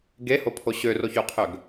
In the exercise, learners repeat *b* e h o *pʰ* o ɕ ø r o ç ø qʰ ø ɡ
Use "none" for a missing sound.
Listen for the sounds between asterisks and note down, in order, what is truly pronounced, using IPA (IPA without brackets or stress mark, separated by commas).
ɡ, pʰ